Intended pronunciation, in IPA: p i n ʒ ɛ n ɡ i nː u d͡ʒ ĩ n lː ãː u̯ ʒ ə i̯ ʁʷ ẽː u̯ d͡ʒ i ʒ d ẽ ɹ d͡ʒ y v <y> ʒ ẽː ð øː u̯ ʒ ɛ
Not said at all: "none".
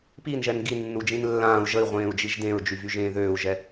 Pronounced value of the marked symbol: y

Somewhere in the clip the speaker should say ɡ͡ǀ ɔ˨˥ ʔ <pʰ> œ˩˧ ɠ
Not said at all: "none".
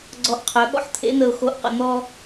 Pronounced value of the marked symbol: qʰ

